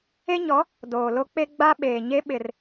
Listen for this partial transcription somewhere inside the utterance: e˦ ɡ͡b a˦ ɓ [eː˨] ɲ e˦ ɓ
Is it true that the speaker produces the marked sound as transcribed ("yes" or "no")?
yes